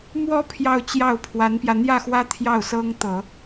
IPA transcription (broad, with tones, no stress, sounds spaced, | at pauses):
m w ɔ˥ pʰ j ɑ˥˧ ʊ̯ t͡ɕ j ɑ˥˩ ʊ̯ pʰ w a˧˥ n p j ä˧ n̪ j ä˥˩ x w ä˥ t̪ʰ j ɑ˥˩ ʊ̯ s ɤ˥ ŋ t̪ ɤ˨˩˦